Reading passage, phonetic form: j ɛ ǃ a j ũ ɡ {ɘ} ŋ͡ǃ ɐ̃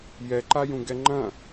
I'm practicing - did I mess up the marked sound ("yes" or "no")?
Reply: yes